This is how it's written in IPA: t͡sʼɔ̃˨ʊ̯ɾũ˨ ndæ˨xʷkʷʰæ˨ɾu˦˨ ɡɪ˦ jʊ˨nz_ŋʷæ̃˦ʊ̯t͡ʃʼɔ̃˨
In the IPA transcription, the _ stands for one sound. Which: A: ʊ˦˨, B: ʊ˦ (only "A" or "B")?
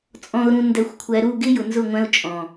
A